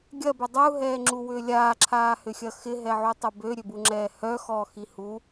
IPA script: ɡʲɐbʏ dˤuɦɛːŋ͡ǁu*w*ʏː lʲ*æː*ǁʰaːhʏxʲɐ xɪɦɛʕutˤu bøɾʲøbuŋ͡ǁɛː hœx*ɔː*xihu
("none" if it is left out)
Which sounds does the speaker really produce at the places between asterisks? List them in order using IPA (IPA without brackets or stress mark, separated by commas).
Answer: w, aː, ɔː